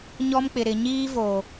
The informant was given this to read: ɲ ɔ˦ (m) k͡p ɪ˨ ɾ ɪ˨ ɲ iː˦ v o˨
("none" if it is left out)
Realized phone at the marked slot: m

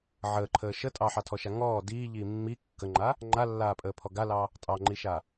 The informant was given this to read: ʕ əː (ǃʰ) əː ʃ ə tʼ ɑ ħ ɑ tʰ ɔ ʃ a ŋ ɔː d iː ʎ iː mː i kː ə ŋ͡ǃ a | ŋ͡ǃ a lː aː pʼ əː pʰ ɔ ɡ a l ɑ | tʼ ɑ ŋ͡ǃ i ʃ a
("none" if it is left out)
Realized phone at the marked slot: ǃʰ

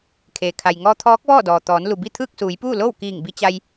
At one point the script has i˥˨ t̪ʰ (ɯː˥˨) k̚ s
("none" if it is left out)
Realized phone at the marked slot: ɯː˥˨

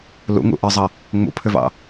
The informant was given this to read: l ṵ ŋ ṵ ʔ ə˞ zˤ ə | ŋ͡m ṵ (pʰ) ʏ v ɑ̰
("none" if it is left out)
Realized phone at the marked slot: pʰ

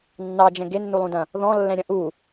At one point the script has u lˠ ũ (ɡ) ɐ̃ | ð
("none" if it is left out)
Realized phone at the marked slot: d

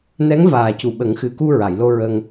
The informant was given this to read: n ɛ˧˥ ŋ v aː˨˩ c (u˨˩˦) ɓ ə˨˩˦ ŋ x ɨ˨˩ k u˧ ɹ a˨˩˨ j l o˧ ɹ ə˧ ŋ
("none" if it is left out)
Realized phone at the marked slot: u˨˩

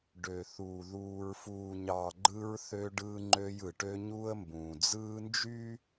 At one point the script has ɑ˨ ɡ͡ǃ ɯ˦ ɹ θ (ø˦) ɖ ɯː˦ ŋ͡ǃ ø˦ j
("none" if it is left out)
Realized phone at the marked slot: ø˦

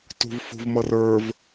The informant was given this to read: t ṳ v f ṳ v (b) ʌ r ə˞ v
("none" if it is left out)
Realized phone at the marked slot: m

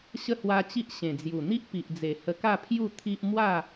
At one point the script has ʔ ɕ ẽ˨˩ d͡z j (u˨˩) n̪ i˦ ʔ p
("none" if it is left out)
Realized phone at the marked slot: u˨˩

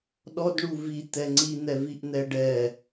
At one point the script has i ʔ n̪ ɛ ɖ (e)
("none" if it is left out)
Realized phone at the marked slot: ɛ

